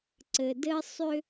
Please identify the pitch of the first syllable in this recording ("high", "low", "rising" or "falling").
low